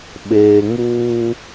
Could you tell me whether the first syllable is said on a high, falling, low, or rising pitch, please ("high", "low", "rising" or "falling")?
low